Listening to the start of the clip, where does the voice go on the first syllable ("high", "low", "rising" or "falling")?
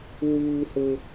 low